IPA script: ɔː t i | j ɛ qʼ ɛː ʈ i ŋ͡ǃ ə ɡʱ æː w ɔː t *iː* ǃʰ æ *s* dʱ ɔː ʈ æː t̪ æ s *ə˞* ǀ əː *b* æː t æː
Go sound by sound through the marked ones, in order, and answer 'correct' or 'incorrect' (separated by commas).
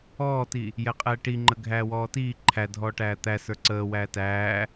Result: correct, incorrect, correct, incorrect